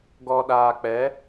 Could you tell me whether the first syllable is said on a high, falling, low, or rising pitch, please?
low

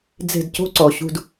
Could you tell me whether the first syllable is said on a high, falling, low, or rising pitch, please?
falling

